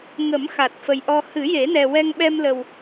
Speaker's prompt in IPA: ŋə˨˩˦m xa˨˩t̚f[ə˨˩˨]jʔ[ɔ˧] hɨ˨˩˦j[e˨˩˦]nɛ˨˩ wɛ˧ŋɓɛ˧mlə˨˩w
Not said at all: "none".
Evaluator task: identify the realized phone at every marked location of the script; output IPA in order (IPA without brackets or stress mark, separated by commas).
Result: ə˨˩, ɔ˧, e˨˩˦